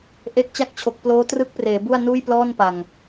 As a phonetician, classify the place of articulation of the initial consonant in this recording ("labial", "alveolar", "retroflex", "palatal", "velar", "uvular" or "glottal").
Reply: glottal